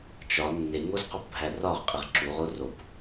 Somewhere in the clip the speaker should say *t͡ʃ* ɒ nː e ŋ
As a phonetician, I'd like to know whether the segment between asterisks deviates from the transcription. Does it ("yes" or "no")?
no